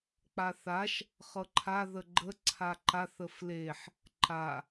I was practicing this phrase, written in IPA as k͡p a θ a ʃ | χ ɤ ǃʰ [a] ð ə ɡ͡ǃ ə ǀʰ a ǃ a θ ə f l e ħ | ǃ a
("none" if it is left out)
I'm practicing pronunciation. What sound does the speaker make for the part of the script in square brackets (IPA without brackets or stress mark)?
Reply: a